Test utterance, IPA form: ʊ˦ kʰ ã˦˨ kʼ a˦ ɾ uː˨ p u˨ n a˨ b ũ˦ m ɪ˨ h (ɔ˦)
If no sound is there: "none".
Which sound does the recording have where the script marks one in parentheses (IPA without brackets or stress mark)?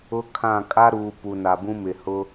ʊ˦